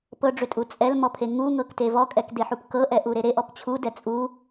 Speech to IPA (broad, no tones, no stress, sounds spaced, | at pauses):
p ɤ ɖ͡ʐ ʏ tʼ u t͡sʼ ɛ l m ɔ pʰ e ŋ u ŋ ɤ k t e v ɔ kʼ ɛ k d e ħ u p k ɤ ʔ ɛ ʔ u ɾ e ɾ e ʔ ɔ p t͡ɕʰ u d ɛ t͡sʼ u